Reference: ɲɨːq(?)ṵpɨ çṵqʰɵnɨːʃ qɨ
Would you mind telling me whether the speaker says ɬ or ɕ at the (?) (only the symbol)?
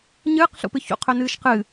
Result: ɬ